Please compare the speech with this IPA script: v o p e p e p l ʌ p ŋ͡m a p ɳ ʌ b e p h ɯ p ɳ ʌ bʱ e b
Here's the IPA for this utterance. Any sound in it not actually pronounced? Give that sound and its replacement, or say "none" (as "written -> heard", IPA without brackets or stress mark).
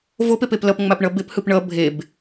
none